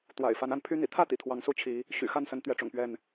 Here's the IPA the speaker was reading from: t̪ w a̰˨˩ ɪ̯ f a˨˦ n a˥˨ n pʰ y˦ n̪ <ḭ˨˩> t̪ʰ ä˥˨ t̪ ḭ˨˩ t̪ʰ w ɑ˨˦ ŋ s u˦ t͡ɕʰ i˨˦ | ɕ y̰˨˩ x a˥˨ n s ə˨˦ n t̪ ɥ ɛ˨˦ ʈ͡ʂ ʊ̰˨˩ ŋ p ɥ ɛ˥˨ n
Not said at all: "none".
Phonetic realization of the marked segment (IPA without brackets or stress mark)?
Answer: ḭ˨˩